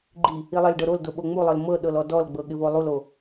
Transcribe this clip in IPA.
ɡ͡ǃ i | i lˠ ɪ l ɖ ɤ ɾ o l d o ɓ o ŋ͡m u lˠ ɤ l m ɤ ɗ ɤ l ɔ d ɔ l ɡ͡b ɤ ɠ ɪ v o lˠ u l o

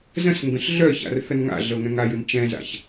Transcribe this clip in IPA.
z ə̃ s ŋ ɡ ə̃ ɬ ɮ œ ç a̰ r θ ə n ŋ a̰ ɮ ɤ ŋ ɛ̃ ŋ a j ɯ n t͡ʃ ɛ̃ z a̰ ç

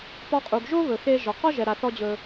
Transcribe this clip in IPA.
p ɒ˧ qʼ u˩ ɡ ʒ o˥ β ɵ˩ x e˧ ʒ ɔ˩ q ɒ˥ ʒ ɛ˩ ɾ a˩ θ ɔ˧ d͡ʑ ɵ˩

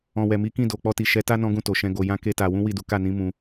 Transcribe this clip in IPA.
ɔ̃˨ w ɛ˨ m i˨˦ k ĩ˦˨ d o˨ k͡p ɔ˧ t i˨ ʃ ɛ˨˦ t a˦ n ɔ̃˦ ɡ ũ˦˨ t o˨ ʃ ɛ̃˧ ɡ o˨ j ã˧ k e˦ t a˧ w ũ˦ w i˦˨ d u˨˦ k a˦˨ n ĩ˨˦ m ũ˧

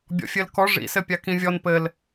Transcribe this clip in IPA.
bʲ ɔ̰ fʲ ɘ l k ɔ ʐ ḭ s ɘ pʲ a k ĩ vʲ ɔ n p ɘ l

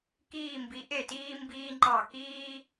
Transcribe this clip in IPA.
k iː˧˩ m b i˩˧ ʔ e˧˩ t iː˧ m b iː˧ ŋ͡ǃ ɑ˧˩ k iː˥

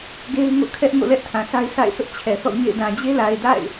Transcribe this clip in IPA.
ɡ e˦ ɪ̯ ŋ o̰˦˨ kʰ ɛ˦ ʔ ŋ o̰˦˨ l ɛ˦ ʔ tʰ ã˨ s a˦ ɪ̯ s a̰˦˨ ɪ̯ sʰ ʊ˦ ʔ t͡ɕʰ ɛ˨ θ ɔ̰˦˨ ɲ ḛ˦˨ ɪ̯ d ã˨ d͡ʑ e˦ l a˨ ɪ̯ d a̰˦˨ ɪ̯

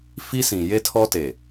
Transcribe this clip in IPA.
f i˦ s ĩ˨ j e˦ tʰ ɔ˦ t e˨

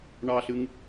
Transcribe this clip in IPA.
ɳ ɑ ɬ ɨ ŋ

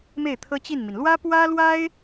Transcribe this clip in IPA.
m e˥˩ ɪ̯ t̪ʰ ɤ˥ t͡ɕ i˥˩ n m i˩ n l w ä˥ p w ä˥ l w a˥ ɪ̯

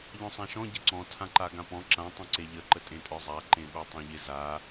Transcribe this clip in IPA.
ʎ ɔ̃ sˤ ã ʃ ɔ̃ ɟ ɪ ǀ ɔ̃ tʰ ã ǃ a ɡ ã p ɔ̃ ǁ ã tˤ ə̃ ǀ e ʎ ə ǃ ə tʼ ẽ tʼ ə˞ zˤ a ǃ ẽ ɓ ə˞ tˤ ẽ ʎ ɪ z a

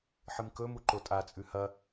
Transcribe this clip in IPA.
ħ ɨ m k ɵ m u ǃ o tʼ a t͡sʼ ʉ h ɐ

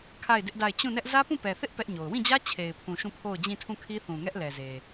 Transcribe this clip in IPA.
kʰ a˦˨ ɪ̯ d ɪ˦ ʔ d a˦˨ ɪ̯ t͡ɕ ũ˦˨ n ɛ˦ ʔ z ä˦ p ũ˦˨ p ɛ˨ θ ɪ˦ ʔ p ɛ˦ ʔ ɲ o˨ ʊ̯ w ĩ˦˨ d͡ʑ ä˦ t͡ɕʰ e˨ ɪ̯ pʰ ũ˨ ʃ ũ˦˨ pʰ o˦˨ ʊ̯ d͡ʑ ĩ˦˨ tʰ ũ˦˨ kʰ i˦ θ ũ˨ ŋ ɛ˦ ʔ l ɛ˨ z e˨

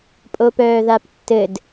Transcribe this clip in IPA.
pʼ o p œː ð a p tː ɘ d

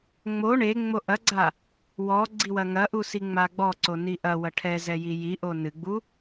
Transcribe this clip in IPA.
ŋ͡m o ɳ e ŋ͡m o ʔ ɐ ɡ͡ǀ a | w ɔ ɡ͡ǀ i w ɐ ŋ ɐ ʔ u s i ŋ͡m a ɡ͡b ɔ ǀ o n i ʔ ɐ w ɐ ʈʰ ɛ z ɛ j i j i ʔ o n ɨ ɡ͡b u

